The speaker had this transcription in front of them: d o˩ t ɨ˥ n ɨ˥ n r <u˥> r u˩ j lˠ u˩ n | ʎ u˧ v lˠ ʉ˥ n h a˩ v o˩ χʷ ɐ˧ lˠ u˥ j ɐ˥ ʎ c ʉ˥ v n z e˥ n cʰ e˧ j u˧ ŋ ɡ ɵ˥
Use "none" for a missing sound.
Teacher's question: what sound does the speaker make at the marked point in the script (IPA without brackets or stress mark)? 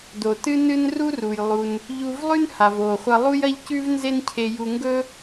u˥